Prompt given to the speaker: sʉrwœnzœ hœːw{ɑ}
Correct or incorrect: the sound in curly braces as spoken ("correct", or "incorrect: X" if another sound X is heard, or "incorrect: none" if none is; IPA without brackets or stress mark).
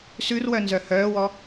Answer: incorrect: ɔ